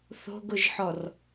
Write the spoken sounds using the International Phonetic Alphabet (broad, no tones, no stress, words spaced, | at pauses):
θo̤ɡʊʒħɔr